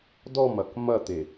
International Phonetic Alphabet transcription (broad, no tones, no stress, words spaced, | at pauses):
dɔmɐk mɐt̪e